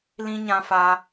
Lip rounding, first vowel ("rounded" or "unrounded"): unrounded